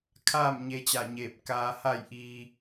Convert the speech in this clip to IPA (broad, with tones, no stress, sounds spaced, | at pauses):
kʰ aː˥˨ m ɲ e˧ t͡ɕ a˧˩ ɲ eː˧˩ p̚ k aː˧ h a˥˨ j ʔ iː˧